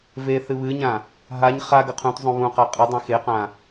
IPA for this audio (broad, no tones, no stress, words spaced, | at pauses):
veθɨ βɨɲã | ɦaɲ χa ɡɐqʰũtzˤũ βũqa qʼɨdˤĩ xeqã